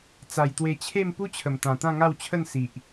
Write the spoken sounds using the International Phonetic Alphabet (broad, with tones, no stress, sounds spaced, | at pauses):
t͡s a˨˩ j t̪ w e˧ t͡ɕʰ e˥˧ m p u˦ t͡ɕʰ ə˨˩ m t̪ ã˨˩ t̪ ã˥˧ ŋ a˥˧ w t͡ɕʰ ə˥˧ n s i˨ ʔ